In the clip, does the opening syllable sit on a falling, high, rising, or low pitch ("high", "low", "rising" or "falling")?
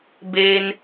high